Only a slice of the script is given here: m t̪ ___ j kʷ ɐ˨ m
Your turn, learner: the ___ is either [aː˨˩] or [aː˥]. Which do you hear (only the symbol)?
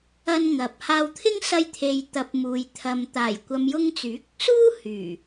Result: aː˨˩